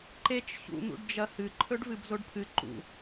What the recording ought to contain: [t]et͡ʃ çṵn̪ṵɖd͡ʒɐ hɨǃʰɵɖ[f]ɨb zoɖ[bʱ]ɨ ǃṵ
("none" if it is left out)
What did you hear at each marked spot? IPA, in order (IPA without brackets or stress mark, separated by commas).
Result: ǃ, v, pʰ